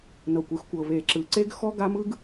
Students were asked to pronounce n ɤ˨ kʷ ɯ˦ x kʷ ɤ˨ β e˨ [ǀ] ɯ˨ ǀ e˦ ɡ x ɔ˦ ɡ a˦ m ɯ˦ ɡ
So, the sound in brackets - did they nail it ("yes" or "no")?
no